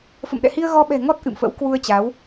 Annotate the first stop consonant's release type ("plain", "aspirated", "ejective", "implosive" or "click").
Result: implosive